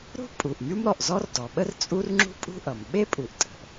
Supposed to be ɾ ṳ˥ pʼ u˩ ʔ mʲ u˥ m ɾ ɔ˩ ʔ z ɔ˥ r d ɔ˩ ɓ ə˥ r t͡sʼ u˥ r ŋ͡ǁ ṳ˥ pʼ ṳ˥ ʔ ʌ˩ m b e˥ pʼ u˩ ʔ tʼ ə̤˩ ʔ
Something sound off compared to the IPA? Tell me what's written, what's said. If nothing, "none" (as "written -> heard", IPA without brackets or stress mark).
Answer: b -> ɓ